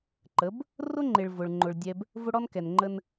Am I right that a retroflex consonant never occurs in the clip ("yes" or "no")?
no